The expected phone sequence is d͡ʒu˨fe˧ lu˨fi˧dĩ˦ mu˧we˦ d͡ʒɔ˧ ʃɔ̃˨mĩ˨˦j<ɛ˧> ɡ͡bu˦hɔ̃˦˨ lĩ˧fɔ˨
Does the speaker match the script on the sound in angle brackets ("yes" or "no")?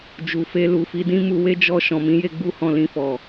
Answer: no